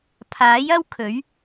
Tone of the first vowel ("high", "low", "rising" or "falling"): rising